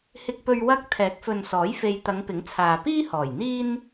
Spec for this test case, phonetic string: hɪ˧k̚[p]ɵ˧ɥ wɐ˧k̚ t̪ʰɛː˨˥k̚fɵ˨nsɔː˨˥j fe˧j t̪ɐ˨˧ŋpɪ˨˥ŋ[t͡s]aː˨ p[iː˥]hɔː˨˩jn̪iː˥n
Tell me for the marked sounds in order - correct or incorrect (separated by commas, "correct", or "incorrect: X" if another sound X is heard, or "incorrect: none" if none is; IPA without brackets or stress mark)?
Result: correct, incorrect: t͡sʰ, correct